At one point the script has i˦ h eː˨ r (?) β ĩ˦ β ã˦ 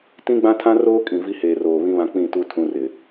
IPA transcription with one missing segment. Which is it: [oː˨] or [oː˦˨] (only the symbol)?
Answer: oː˨